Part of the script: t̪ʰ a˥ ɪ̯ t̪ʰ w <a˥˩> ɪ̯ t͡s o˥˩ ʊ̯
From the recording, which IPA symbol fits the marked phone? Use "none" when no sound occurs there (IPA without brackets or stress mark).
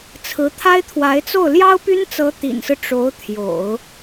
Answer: a˧˥